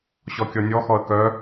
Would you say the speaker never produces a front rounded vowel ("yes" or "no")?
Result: no